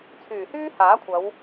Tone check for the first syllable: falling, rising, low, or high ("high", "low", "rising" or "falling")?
low